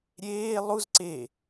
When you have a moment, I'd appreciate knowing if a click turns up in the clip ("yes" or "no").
yes